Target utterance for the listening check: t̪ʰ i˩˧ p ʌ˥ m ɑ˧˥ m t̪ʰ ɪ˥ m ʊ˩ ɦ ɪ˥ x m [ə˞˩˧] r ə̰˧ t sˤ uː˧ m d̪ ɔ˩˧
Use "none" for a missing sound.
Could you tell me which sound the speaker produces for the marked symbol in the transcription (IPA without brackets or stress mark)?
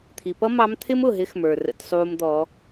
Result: ə˞˩